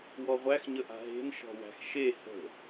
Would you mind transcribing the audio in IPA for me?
wɔʁʷæx ɲəʔa̤ɦe̤n ʃɔ̤wæ̤xʃe hə̤

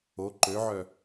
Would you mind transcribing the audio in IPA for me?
o ǃøʕœ

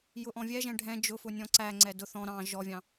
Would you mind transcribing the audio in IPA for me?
jʊʔɔ̃vʲɛʒɛ̃ ɖʱɛ̃ d͡ʒʊfʊ nʲɔ̃ǀæŋ͡ǀɛ dʊθ ɔ̃ ɾɑ̃ ʒɔvʲɑ̃

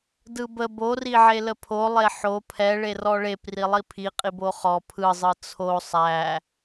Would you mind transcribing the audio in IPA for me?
dɯbə boriʕelə pʰolˠe ħo pʰɛ ɭerɔɭep rilˠipʰiqʼib oχɔ pʰɯzˤɯ t͡sʰo sˤæ

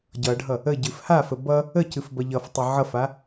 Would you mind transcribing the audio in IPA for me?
ɟʌɖʱʌ | əɟɨf hafə bʌ | əcɨf bʌʎʌftˤɨ ʕʌfa

